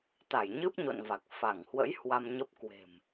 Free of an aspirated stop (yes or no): yes